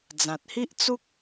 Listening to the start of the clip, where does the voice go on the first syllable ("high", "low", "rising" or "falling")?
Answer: low